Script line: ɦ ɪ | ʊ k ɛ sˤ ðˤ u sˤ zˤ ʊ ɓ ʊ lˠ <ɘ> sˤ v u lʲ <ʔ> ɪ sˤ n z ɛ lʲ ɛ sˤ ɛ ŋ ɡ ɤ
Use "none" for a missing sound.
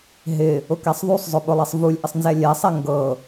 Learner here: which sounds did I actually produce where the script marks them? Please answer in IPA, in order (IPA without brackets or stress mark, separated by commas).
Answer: ɛ, ʔ